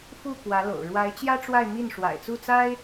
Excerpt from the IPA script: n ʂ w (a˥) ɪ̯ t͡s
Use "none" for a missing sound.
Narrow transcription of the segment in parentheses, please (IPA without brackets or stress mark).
a̰˨˩